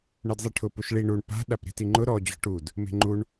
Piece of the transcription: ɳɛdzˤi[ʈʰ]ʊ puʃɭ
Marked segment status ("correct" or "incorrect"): correct